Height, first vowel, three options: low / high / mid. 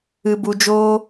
high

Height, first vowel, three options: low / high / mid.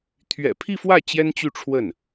mid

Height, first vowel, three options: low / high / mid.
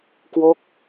mid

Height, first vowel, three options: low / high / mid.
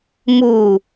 high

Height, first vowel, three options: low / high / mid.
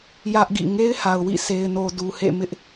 low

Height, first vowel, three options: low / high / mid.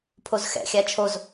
mid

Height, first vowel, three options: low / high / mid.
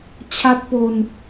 low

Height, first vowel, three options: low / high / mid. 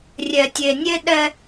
mid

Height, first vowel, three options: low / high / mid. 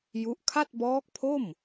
high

